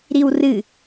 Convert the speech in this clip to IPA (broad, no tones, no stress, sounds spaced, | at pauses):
ɾ i w r ɨ